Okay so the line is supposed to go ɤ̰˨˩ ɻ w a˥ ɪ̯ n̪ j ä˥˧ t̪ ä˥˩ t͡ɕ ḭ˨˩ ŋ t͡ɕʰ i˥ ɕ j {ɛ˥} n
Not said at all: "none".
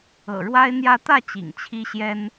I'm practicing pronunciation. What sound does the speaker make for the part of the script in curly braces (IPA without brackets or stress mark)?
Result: ɛ˥